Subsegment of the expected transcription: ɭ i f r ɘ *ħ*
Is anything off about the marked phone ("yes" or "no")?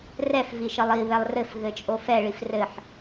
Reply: no